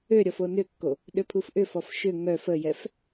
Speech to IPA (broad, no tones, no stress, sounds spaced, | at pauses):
ø ɾʲ ɔ f o n ʏ kː o | ɗ ʏ pʰ u f ʔ ʏ f ɔ f ʃ ʏ ŋ œ f ə j ɛ f